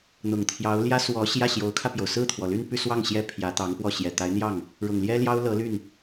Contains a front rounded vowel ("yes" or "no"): yes